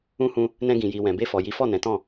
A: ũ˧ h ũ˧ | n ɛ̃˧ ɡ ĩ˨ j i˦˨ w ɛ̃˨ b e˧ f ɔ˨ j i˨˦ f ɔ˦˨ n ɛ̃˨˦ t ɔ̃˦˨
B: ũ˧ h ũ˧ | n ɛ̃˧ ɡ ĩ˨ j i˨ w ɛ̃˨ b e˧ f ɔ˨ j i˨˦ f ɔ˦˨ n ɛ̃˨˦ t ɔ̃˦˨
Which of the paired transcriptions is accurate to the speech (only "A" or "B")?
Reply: B